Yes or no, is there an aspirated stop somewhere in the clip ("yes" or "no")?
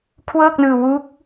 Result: yes